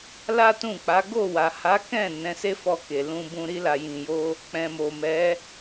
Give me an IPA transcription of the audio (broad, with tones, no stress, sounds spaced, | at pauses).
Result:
l a˦ t ũ˦˨ k͡p a˨˦ ɡ o˦˨ w a˨ h a˨˦ k ɛ̃˦˨ n ɛ̃˨˦ s e˦ f ɔ˧ k e˨ l ũ˧ b ũ˧ ɾ i˧ l a˨ j ĩ˨ j o˧ | k͡p ɛ̃˨ m o˨ m ɛ˨˦